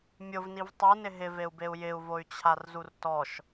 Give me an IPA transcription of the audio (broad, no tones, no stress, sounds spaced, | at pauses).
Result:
mʲ ʊ v n i v tˤ u n ɪ ɦ ɪ v e u̯ b e u̯ j ɪ u̯ v o y̯ t͡ɕʰ a r z u r t ɔ ʃ